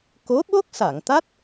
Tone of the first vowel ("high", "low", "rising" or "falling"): rising